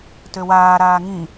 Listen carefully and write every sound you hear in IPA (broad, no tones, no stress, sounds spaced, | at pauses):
t ø w aː ɾ aː ŋ ĩ